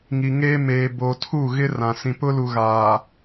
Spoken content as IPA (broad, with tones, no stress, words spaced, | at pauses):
ŋi˨ ŋeː˦ meː˨ boː˨tʰu˦˨ɣɪ˦ rã˨ sĩ˨pʊ˦lu˨ ɣaː˨